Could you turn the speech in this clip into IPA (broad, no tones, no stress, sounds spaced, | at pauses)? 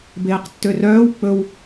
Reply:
b eː q tː ø r œː w k͡p ɵ w